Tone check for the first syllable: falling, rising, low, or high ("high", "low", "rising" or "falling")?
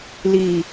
low